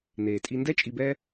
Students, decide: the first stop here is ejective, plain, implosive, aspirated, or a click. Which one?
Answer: ejective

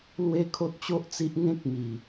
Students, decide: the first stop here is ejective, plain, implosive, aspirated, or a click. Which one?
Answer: aspirated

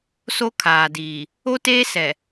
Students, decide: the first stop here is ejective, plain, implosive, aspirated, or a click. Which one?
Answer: aspirated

